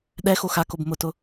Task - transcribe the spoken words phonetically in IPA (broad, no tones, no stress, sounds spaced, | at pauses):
ɗ ɛ x o x a k o b m ʊ t ʊ